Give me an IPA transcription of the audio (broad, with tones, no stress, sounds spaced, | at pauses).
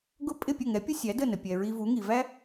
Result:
ɡ ʊ˥ pʼ ɪ˥˩ pʲ ə˥˩ ŋ ɛ˩˥ pʲ ʊ˥ sʲ æ˩˥ d ə˥˩ n ə˩ pʲ ɛ˩ ɹ i˧ v u˩˥ ŋ i˩ v æ˥